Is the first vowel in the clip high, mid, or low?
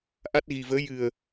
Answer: low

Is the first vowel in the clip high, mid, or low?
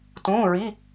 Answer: high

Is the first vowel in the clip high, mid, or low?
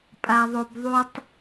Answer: low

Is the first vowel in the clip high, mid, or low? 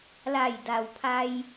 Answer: low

